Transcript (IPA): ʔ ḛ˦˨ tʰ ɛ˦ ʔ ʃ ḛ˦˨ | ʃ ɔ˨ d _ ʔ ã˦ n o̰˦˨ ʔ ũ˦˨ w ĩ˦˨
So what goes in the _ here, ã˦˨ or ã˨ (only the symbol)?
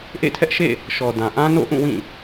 ã˨